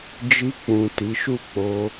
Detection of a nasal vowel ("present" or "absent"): present